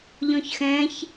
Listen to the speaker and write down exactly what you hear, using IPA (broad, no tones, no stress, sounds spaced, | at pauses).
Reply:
ʎ ɔ̃ ç x ɛ̃ ç